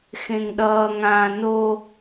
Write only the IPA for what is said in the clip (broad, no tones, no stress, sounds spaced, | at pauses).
x ẽ ŋ ɗ ʌː ŋ ãː n o